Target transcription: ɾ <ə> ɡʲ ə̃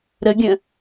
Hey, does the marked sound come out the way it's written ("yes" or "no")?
yes